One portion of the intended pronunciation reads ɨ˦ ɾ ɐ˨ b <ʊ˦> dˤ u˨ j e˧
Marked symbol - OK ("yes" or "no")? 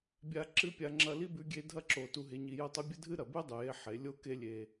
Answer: no